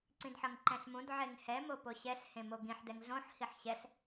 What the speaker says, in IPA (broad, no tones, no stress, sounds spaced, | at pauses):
ǀ ĩ d ħ ʌ ŋ ǃ ɛ̃ ɬ m ũ d ʕ e ŋ h ɛ m o p o ɕ ɛ ɬ h ẽ m o ɡ ĩ ħ d ɛ ŋ ɮ õ ħ h i ħ ɕ ɛ ɬ